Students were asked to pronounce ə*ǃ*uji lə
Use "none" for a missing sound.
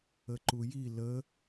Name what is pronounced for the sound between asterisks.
ǃ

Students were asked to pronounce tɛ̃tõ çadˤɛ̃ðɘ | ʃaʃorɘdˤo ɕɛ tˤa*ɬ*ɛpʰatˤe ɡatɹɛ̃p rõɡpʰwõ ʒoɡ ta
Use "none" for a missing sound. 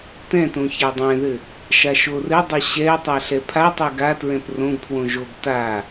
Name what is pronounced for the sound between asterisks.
ɬ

